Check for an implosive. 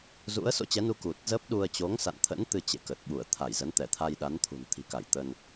present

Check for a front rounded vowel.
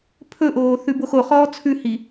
absent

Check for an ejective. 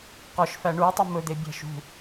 absent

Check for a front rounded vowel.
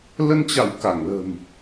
absent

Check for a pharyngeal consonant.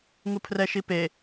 absent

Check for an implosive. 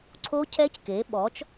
present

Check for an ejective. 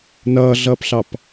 absent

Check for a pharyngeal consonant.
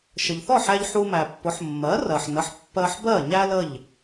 present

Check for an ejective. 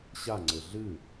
absent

